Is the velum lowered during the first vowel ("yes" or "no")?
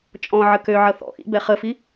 yes